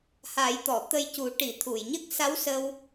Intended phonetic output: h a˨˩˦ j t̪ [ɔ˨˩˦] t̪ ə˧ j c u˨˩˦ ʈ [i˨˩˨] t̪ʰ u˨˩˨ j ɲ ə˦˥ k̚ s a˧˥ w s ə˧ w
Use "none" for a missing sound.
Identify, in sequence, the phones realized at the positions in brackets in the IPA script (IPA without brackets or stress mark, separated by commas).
ɔ˨˩˨, i˨˩˨